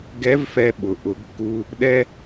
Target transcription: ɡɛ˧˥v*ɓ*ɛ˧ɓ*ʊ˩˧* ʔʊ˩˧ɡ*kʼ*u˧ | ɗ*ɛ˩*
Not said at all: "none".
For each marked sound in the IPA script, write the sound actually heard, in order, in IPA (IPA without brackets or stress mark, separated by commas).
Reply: f, ʊ˩, kː, ɛ˧